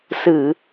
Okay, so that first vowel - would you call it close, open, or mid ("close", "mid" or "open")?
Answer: close